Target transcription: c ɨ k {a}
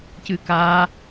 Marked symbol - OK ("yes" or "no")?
yes